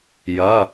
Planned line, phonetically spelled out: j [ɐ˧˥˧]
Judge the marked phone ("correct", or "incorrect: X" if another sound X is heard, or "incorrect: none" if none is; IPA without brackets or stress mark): correct